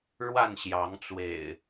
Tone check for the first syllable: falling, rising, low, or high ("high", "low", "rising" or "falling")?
falling